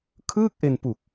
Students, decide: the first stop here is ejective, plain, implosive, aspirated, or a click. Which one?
aspirated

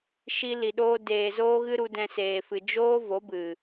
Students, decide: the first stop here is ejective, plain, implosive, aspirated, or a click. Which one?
implosive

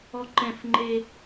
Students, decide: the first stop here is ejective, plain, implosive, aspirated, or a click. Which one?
click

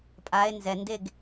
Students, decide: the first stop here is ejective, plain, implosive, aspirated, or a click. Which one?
ejective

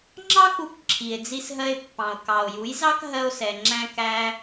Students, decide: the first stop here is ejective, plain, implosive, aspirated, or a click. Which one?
click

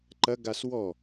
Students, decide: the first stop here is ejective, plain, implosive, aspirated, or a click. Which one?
click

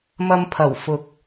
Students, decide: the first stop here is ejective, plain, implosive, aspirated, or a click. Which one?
aspirated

